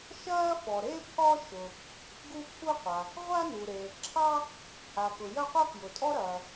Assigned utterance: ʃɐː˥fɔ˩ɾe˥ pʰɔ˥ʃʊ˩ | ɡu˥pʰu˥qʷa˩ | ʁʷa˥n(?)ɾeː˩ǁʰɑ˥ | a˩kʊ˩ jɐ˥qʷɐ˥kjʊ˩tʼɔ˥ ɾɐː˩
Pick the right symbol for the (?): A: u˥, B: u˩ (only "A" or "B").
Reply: B